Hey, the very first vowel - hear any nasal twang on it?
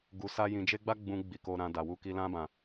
no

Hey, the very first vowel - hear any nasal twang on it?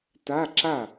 no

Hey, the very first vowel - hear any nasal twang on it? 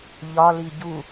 no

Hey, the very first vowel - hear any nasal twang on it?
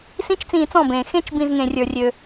yes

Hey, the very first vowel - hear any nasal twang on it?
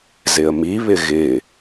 no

